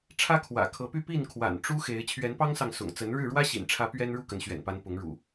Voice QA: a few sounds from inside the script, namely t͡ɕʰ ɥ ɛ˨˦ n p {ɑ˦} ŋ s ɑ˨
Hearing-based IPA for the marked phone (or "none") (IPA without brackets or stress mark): ɑ˦